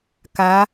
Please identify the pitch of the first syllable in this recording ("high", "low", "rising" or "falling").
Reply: rising